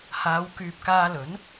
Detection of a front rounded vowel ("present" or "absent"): present